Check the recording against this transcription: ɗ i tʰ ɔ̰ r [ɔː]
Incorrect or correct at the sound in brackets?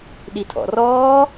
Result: correct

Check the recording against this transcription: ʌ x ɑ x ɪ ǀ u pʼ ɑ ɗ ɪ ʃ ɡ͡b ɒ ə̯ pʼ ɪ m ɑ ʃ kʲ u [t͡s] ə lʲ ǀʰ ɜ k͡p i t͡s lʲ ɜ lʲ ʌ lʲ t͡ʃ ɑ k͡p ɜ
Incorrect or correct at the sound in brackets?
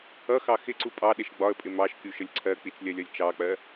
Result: incorrect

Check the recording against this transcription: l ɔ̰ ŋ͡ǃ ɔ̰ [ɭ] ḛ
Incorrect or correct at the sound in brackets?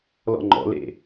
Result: incorrect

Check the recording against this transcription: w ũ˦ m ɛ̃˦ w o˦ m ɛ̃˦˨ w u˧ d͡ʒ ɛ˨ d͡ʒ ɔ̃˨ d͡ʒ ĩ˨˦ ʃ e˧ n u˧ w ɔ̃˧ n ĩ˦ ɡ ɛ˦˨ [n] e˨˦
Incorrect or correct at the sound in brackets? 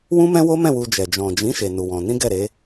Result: incorrect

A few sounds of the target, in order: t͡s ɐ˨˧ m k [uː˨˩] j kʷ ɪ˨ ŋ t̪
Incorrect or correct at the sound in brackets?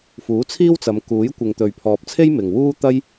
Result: incorrect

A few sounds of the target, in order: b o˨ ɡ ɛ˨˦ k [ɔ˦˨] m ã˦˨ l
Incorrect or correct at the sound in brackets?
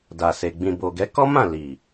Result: incorrect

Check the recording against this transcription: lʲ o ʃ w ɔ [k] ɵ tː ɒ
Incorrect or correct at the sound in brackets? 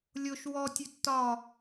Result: incorrect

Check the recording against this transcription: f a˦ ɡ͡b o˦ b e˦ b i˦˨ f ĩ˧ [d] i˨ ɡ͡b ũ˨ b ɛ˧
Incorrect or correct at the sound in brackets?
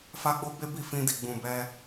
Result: correct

